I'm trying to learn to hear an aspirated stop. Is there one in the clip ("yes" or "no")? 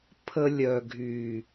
yes